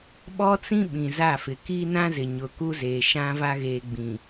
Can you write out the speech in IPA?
ɓ ɔ˦ t͡s ĩ˦ ɓ ĩ˨ z a˦˨ f ɪ˨ k i˦ n ã˦ z ɪ˨ ɲ ʊ˨ k u˦ z eː˨ ʃ ã˦ v a˦ ɣ eː˨ ɡ͡b ĩ˨

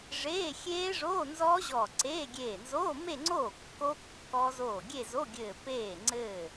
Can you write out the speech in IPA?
ʐ eː˧˥˧ xʲ eː˦˥ ʐ oː˧˥˧ n z ɔː˦˥ ʑ ɔ˧˩ ǀ eː˧˥˧ ɡʲ eː˧˩ n z oː˧˥˧ m e˥˧ ŋ͡ǀ oː˥˩ kː o˦˥ kː ɔ˦˥ z oː˥˩ ɡʲ e˥˧ z o˧˥˧ ɡʲ ɘː˧˩ p eː˥˩ ŋ͡ǀ ɘː˥˩

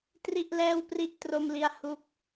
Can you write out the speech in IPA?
t r i˥˩ ʔ l ɛː˥˩ w p r i˥˩ ʔ t r o˥˩ m l i˦˥ a̯ h u˦˥ k̚

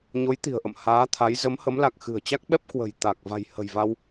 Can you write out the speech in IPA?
ɲ o˨˦ j t̪ i̤˨˩ ə̯ ʔ ə̰˧˨ m h aː˨˦ t̪ʰ a˨˦ j z ə˨˦ m h ə˨˦ m l a˨˩ k̚ x ɨ̤˨˩ ə̯ t͡ɕ a˦˥ k̚ ɓ ɛ˦˥ p̚ k w ə̤˨˩ j t̪ a˨˩ k̚ v a̤˨˩ j h ə̤˨˩ j v a˧ w

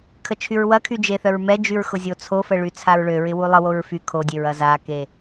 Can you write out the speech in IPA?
kʰ ə t͡ʃʰ y ɹ w ɐ kʰ y d͡ʒ e θ œ ɹ m ɛ d͡ʒ y ɹ x ʊ zʲ o t͡sʰ o f ə ɭ y t͡sʰ a ɹ ɭ ø ɹ ɪ w u lˠ ə w o ɹ f y kʰ o dʲ e ɹ ɐ z a k e

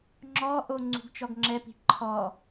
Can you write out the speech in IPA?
ŋ͡ǁ ɔ ʔ o ŋ͡ǀ ṳ ɡ t͡ʃ ɔ ɡ ŋ͡ǁ ɛ p i̤ ǃʰ ɔ

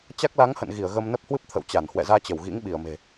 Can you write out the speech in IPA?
t͡ɕ a˦˥ k̚ l a˨˦ ŋ h ə̰˧˨ n ɣ i˧˩ ə̯ ɣ ə˧ m n ə˦˥ p̚ h w ɨ˦˥ p̚ t̪ʰ ə̰˧˨ w t͡ɕ a˧˩ n h w ɛ̰˧˨ z aː˧ t͡ɕ ə˧˩ w ɣ ḭ˧˥ ŋ ɓ i˧˩ ə̯ m e̤˨˩

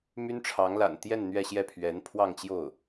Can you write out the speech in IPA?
m y˥ n ʈ͡ʂʰ ɑ˧˥ ŋ l a̰˨˩ n t̪ j ɛ˥˧ n n̪ ɥ ɛ˥˧ ɕ j ɛ˥˩ pʰ ɥ ɛ˧˥ n pʰ w ɑ˥˧ ŋ t͡ɕ j o˥˩ ʊ̯

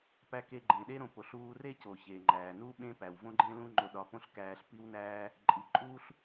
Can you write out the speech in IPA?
p æ˧ k e˧ ɡ͡ǃ ẽ˩ ɗ e˥ ɾ õ˧ p o˩ ɬ uː˧ r e˥ c o˩ ç e˩ ŋ͡ǃ æː˩ n u˥ ɓ ẽ˥ p æ˩ w v õ˥ ɡ͡ǃ ẽ˥ l ũ˥ ŋ͡ǃ o˧ ɗ ɒ˧ p õ˥ ɬ k æː˧ ɬ p i˥ w n æː˥ | ǃʼ i˩ ǃʼ uː˥ ɬ

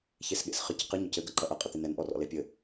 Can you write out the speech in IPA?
ç e s ɠ ḛ s χ ɨ c q ɨ ɲ ɔ c ɘ ɡ ɐ ǃ ɐ ʔ ɐ qʼ ɘ t̪ e n ɛ n ʔ ɔ r ɔ̰ l e pʲ ɘ

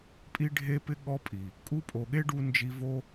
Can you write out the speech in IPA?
pʼ i˧ ɖʱ e˧ p ɪ˧ ɠ ɔ˧ pʼ i˨ | kʼ u˧ pʼ o˨ ɠ e˦ ɖ u˧ n d͡ʒ i˧ v o˦

